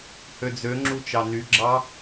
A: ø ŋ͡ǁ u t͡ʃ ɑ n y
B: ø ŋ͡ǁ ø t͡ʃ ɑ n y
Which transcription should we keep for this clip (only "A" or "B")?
A